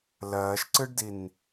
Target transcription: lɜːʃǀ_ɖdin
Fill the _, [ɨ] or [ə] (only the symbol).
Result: ɨ